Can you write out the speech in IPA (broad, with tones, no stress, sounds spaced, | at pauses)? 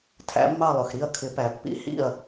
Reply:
tʰ æ̰˩˧ mː ɑ˧˩ lˠ ʊ˩ x ɾ i˧˩ ɐ̯ kʰ ɪ˩˧ p æ˩ pː ḭ˨˥ h ḭ˧˩ ɐ̯